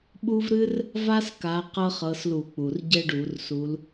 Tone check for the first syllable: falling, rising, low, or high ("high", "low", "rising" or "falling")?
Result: high